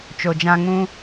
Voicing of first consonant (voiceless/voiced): voiceless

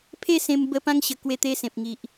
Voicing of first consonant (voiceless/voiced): voiceless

